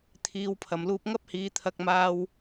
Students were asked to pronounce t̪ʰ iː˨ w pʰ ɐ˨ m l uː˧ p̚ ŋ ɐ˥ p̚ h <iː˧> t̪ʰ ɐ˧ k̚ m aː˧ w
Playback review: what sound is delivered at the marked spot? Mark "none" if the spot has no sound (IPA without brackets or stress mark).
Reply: iː˨˧